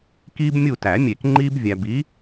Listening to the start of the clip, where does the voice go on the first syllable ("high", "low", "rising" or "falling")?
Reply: high